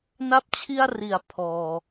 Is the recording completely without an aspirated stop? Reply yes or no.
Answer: no